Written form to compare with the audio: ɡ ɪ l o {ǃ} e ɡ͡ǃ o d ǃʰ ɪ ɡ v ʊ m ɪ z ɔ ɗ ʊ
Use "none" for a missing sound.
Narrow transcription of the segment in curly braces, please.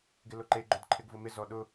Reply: ǃ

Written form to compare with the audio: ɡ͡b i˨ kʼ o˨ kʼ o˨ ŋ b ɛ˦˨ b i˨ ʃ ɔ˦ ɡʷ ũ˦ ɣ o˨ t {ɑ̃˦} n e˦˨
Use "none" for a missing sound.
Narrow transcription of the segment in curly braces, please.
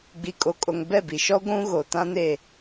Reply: ã˦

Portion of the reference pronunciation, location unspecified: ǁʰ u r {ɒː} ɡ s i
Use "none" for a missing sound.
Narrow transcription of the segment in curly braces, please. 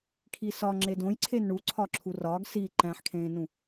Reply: ɒː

